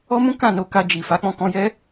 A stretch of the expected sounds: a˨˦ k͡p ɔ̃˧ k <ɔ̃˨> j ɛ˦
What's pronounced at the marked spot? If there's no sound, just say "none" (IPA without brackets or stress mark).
ɔ̃˧